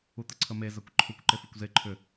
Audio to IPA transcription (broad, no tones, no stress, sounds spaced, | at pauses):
u t̪ ə ǀʰ ə m e z a kʷ ǃʰ u kʷ ǃ e f u kʷ z e ǃʰ ʏ